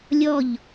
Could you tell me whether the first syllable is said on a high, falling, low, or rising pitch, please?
falling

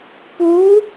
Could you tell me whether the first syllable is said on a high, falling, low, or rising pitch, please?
rising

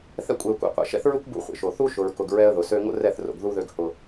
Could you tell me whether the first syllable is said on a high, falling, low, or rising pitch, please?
high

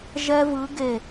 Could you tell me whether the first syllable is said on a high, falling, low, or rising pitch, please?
high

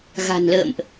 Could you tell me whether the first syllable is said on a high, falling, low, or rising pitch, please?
low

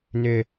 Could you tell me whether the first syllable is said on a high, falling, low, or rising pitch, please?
low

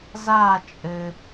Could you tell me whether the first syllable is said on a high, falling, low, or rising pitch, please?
falling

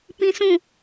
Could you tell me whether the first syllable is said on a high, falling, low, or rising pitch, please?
high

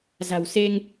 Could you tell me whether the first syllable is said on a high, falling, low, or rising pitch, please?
low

